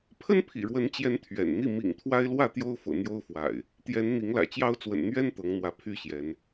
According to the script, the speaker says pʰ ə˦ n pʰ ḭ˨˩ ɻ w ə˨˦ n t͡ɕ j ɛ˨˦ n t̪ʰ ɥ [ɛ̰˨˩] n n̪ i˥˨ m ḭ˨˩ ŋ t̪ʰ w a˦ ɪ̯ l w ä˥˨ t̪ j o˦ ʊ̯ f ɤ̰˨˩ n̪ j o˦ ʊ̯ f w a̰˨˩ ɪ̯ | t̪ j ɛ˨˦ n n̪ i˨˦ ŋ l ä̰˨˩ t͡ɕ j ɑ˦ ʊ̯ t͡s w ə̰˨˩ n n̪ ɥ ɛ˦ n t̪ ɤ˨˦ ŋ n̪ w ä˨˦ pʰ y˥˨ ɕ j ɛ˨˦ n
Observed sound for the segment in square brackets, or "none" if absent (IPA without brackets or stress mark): ɛ̰˨˩